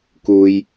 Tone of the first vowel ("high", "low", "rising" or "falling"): low